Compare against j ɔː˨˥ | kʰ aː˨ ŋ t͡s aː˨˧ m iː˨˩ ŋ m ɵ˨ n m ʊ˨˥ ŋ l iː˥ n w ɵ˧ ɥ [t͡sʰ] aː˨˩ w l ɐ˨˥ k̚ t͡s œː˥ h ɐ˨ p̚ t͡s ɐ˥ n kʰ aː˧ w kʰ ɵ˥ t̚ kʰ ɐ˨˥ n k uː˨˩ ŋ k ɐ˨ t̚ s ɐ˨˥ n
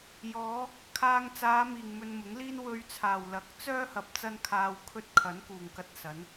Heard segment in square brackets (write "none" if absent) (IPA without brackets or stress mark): t͡sʰ